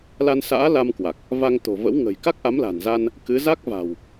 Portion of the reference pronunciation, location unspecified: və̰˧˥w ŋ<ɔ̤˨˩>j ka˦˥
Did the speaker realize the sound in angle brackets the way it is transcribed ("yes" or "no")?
no